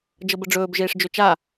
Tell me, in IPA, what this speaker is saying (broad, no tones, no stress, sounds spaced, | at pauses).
d͡ʒ ɤ b ə ɖ͡ʐ ɵː b ʒ eː ʂ d͡ʒ ɵ t͡ʃ a